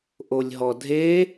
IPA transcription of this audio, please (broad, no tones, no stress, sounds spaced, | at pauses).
ʔ o lʲ ɦ ɔ dʱ e